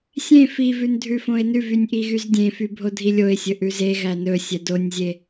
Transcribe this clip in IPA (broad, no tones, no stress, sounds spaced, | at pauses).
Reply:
sʲ ẽ f i v ʉ n dʱ ʉ f õ ɪ̯ n ʉ v y nʲ ʔ i ɣ y z dʲ ẽ f y bʱ o dʱ i lʲ o ɪ̯ sʲ ɵ ʔ ʉ z e ɣ æ n ɵ sʲ ɛ d o nʲ zʲ e